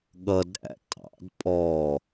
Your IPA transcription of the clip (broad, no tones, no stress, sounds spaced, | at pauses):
ɠ ʌ d ɾ æ̰ tʼ ɑ̰ d pʼ ɔ